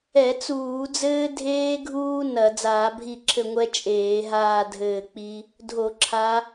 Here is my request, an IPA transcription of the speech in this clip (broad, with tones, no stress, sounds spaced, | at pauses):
ɛ˧˩˧ t͡s uː˧˩˧ d͡z ɘː˦ dʱ eː˦ ɡʱ uː˦ n ɐ˧˩˧ d͡z aː˧˩˧ bʱ i˦˨ ǁʰ ɘ˦˨ ŋʷ ɛ˦ t͡ʃʼ eː˧˩˧ ɦ aː˦˨ dʱ ɘː˦˨ k͡p i˦ | dʱ o˧˩˧ ǁʰ a˨˦